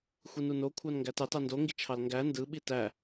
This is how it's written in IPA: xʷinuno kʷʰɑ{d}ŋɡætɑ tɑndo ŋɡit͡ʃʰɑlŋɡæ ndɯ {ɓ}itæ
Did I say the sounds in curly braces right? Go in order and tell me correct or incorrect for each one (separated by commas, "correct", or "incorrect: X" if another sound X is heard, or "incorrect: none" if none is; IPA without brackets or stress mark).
incorrect: n, correct